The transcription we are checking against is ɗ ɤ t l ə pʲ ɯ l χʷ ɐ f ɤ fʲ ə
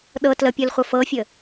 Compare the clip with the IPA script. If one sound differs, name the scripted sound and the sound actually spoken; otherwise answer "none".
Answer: none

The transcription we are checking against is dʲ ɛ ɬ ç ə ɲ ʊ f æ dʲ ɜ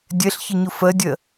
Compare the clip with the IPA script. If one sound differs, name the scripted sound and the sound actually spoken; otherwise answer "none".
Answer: æ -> ɜ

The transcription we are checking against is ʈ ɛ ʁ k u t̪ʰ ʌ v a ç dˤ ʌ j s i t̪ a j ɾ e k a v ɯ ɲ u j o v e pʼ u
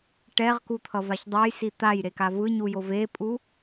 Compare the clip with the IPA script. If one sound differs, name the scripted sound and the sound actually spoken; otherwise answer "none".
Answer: none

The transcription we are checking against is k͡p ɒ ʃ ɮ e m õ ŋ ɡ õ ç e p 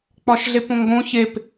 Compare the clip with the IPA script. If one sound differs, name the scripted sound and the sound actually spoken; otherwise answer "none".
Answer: m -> p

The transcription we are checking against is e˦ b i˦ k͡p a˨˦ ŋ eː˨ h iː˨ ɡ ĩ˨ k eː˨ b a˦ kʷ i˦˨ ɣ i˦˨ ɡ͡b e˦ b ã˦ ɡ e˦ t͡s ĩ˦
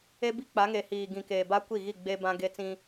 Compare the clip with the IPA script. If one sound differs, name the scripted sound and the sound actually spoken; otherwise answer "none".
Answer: none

